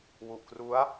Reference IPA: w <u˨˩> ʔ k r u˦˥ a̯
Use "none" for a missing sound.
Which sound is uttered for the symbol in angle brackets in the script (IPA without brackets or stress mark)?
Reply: u˨˩